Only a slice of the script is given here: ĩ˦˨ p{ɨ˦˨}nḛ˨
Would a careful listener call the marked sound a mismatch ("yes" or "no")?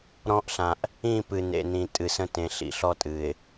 yes